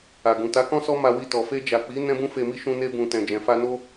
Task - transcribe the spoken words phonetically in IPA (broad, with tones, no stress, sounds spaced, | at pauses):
a˨ ɡ ũ˨ t a˨˦ k ɔ̃˦ s ɔ˦ m a˧ w i˧ t ɔ˨ f e˧ d͡ʒ a˨ k͡p i˨˦ n ɛ̃˦ b ũ˦ f e˧ m i˦ ʃ ũ˧ n e˧ b ũ˨ t ɛ̃˨ d͡ʒ ɛ̃˨ f a˧ n o˦